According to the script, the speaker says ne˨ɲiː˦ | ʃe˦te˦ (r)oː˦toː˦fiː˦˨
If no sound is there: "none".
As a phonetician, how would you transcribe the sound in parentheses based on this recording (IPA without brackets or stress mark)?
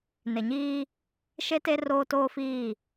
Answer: r